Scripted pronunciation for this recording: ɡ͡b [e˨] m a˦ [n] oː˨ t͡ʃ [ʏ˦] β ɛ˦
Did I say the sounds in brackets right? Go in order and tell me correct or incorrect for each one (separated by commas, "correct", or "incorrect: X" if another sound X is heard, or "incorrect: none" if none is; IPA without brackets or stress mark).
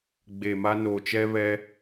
correct, correct, incorrect: ɛ˦